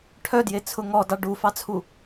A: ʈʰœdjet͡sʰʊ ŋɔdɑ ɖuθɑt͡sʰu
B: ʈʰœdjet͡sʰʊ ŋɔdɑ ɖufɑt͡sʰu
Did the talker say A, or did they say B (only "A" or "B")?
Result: B